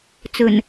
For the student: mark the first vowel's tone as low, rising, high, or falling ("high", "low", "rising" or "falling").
low